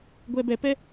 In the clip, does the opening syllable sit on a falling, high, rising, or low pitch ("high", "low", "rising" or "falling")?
low